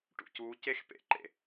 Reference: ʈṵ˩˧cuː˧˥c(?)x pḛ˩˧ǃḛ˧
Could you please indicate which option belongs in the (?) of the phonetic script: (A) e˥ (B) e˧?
A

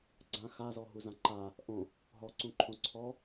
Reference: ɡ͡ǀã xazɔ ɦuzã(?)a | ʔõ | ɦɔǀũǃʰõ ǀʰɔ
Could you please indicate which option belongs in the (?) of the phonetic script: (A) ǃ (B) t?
A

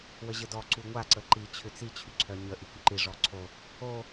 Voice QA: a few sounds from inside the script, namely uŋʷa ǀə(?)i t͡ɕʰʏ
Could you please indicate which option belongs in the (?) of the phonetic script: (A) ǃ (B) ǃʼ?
A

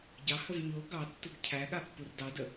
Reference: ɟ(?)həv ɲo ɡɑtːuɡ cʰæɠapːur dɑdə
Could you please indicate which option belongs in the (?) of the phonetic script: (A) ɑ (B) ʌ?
A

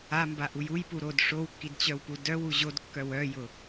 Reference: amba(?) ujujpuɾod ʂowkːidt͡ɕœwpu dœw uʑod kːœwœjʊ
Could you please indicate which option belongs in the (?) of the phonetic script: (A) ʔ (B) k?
A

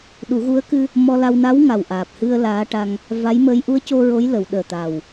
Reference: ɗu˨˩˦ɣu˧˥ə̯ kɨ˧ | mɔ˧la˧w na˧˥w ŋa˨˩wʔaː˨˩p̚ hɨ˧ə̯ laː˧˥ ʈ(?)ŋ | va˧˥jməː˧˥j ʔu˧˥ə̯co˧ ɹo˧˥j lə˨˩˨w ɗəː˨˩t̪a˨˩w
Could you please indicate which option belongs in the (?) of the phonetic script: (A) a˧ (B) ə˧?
A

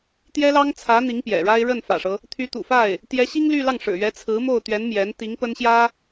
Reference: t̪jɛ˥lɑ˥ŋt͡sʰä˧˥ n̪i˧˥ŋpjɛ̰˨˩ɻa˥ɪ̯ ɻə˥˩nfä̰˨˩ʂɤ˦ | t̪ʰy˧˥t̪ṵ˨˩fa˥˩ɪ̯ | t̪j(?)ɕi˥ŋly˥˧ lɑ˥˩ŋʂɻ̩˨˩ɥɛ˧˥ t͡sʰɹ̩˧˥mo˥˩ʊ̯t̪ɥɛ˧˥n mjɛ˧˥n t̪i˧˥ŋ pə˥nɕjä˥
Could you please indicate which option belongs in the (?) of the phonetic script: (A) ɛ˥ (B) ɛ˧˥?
B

